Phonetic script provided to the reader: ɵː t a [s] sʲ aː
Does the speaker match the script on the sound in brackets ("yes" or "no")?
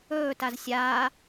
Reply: no